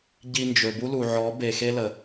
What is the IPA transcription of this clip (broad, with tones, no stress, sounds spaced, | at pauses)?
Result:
ɟ i˧ n d͡ʒ ɵ˨ b u˦ l u˨ ʕ ɔ˨˦ b e˨ x e˦ l ə˨